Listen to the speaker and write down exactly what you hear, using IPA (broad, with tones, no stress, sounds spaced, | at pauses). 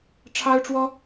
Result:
ʈ͡ʂʰ ɑ˥ ʊ̯ ʈ͡ʂ w ɔ˥